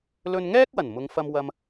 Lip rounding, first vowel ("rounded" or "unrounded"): rounded